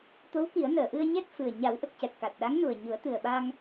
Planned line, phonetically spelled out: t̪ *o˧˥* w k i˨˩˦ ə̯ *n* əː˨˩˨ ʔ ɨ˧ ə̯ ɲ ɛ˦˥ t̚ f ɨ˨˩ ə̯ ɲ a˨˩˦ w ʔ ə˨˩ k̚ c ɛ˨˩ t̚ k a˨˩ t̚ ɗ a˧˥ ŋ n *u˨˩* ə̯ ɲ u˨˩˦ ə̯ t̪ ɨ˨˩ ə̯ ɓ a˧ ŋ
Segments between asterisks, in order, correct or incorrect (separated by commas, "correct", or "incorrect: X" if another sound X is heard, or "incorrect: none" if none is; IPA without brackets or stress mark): correct, correct, correct